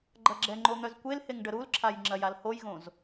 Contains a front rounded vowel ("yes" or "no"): yes